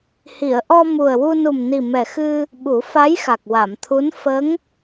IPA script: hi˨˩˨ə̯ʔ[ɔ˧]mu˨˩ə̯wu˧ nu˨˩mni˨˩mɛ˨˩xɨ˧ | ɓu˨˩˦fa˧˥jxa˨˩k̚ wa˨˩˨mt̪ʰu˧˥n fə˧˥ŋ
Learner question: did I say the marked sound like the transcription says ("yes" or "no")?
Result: yes